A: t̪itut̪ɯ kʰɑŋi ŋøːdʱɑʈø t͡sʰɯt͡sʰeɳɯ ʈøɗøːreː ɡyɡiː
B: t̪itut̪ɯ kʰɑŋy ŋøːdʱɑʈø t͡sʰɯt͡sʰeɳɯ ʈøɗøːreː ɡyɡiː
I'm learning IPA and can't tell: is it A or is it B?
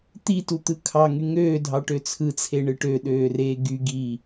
B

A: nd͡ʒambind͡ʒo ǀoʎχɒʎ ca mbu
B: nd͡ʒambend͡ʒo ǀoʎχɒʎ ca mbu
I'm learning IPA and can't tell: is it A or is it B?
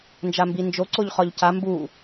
A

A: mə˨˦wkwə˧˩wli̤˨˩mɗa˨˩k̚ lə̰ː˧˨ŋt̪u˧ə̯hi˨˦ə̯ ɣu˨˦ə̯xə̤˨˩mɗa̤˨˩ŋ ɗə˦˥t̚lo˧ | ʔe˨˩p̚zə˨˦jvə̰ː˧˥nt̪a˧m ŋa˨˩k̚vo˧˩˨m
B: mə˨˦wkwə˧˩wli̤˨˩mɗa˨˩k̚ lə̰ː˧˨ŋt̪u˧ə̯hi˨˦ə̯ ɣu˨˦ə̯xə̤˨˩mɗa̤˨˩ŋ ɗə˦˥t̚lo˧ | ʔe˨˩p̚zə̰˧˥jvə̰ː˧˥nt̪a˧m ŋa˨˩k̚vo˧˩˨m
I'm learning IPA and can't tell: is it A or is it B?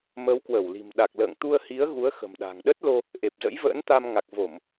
B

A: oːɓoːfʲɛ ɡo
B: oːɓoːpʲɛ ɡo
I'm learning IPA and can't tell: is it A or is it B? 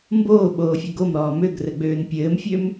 A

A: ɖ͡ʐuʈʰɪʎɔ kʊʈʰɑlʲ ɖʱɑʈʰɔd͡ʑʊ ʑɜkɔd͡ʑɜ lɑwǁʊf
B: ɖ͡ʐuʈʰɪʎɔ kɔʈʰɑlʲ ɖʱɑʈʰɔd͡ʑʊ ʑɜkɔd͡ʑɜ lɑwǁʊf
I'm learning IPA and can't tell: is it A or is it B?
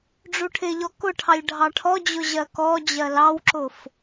A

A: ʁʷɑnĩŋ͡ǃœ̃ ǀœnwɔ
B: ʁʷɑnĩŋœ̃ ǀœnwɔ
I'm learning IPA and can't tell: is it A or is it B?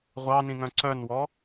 B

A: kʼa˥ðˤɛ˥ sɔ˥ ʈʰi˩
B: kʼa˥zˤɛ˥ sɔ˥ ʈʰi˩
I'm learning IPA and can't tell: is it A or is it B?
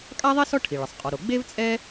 A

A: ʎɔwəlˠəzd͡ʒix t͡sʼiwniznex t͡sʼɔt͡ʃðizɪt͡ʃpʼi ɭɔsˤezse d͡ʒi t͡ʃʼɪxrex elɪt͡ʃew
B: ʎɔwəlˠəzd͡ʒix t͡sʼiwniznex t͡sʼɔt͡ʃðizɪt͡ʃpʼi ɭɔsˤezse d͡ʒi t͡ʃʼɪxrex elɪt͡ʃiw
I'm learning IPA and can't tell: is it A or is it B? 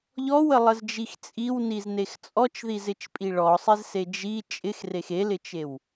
A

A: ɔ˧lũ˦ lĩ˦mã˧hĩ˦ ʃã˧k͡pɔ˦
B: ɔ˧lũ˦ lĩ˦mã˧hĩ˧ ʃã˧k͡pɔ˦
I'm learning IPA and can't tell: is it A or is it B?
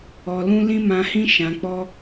A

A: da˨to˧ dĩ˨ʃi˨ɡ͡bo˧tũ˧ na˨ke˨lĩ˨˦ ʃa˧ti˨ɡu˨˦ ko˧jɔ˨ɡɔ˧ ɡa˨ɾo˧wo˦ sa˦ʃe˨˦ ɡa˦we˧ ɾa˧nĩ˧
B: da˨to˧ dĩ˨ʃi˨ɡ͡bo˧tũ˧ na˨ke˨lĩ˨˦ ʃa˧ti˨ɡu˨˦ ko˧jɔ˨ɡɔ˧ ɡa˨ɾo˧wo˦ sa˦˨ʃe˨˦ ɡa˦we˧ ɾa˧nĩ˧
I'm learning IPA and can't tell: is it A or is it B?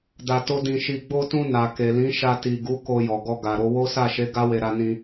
B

